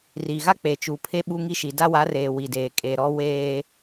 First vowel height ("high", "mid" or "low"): high